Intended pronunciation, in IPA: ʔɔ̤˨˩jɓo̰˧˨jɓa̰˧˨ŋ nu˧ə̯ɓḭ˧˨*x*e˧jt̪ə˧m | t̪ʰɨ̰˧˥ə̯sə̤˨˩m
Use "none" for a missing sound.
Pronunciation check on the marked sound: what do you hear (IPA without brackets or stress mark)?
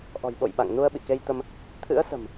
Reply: k